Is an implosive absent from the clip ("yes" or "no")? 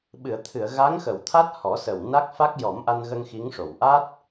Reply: no